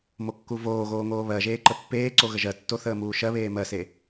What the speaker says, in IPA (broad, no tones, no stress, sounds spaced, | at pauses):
m o kː u v oː ɣ oː ŋ oː β ɜ ʒ eː ǃ ə pː eː ǀ o ɣ ə ʒ ɜ tː o θ əː m uː ʃ ɜ β eː m ɜ s e